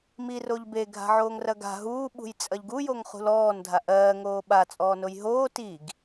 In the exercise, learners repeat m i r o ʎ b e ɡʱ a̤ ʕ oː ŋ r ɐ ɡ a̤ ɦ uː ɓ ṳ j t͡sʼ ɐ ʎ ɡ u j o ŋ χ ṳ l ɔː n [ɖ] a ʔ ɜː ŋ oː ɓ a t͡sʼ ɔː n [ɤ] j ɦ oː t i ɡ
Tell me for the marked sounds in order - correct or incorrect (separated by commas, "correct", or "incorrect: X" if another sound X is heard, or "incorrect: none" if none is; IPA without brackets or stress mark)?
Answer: incorrect: dʱ, incorrect: o